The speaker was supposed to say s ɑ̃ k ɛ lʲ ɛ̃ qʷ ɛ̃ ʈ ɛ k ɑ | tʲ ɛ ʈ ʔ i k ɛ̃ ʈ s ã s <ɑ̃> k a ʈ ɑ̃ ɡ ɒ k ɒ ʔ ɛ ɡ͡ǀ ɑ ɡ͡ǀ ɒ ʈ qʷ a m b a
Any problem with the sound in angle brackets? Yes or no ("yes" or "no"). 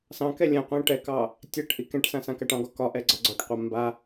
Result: yes